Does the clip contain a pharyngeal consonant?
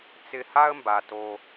no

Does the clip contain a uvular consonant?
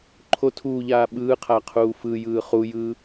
yes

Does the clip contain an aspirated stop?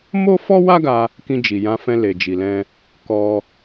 no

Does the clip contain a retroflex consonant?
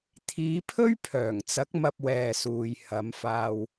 no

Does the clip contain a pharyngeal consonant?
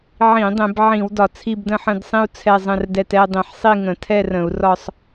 yes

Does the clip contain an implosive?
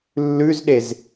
yes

